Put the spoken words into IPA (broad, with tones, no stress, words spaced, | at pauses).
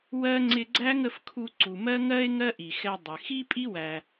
wɜ˥ ŋ͡ǀɪ˧ɡ͡ǀæ˥ŋə˧fkʰu˧ ǀu˩mɜ˥ŋɜ˥e̯ ŋɜ˥ʔi˩xɛ˧ dˤɪ˩ xi˥pʼi˥wæ˩